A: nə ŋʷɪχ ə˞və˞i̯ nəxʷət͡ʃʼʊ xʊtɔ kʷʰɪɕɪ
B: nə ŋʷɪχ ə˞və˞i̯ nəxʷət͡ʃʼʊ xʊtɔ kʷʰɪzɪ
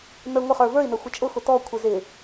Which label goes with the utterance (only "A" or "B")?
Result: B